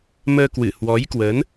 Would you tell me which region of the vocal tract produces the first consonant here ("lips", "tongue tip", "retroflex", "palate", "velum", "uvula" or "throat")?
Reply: lips